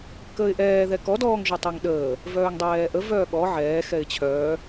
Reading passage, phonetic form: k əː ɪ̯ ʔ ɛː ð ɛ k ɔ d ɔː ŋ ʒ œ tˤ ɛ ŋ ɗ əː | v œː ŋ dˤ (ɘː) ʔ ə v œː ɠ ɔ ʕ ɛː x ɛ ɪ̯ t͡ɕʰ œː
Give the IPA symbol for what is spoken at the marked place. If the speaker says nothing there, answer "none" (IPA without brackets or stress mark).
ɛː